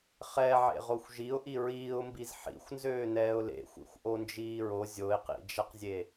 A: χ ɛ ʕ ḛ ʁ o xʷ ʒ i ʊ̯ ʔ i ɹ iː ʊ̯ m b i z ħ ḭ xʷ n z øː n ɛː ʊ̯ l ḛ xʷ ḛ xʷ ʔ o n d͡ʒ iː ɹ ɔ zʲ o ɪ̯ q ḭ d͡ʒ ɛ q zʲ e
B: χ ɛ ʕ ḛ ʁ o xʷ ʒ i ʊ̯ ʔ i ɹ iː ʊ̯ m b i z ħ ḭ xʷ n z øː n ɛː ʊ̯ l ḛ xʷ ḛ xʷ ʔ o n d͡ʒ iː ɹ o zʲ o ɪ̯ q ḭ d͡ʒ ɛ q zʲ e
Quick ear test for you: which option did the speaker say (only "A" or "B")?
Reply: B